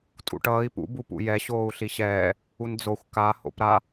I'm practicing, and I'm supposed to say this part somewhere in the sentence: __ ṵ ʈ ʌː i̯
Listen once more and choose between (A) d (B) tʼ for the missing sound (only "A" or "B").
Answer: B